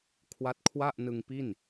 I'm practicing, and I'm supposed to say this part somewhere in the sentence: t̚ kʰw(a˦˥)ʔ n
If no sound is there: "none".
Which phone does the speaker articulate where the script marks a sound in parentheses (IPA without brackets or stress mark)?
a˥˩